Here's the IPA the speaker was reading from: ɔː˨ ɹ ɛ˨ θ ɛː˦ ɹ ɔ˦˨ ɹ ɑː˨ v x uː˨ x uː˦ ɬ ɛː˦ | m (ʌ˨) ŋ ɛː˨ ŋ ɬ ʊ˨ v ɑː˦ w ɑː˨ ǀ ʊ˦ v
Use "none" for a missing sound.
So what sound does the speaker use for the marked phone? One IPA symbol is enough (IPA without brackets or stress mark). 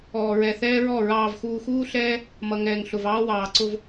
ʌ˨